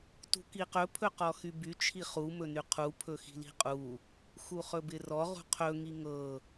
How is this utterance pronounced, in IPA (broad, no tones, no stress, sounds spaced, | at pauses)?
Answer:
t ṳ k i q ɵ pʰ ɵ q ɔ x y b y t͡ʃʰ i χ u m ɵ n y qʰ u pʰ ɵ x i̤ l i̤ qʼ u | x u χ ɵ b ɪ r ɔ ʁ ṳ qʰ ɵ ŋ i ŋ ɤ